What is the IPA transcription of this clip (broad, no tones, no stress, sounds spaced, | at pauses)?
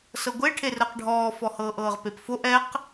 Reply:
s ɤ ɡʷ e ʈʰ e r əː q ɖʱ ɔː f ɔ h ɤː ʔ ɤː ʁ p e p f o ʔ ɛ q